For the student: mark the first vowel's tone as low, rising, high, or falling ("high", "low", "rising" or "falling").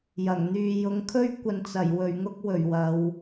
low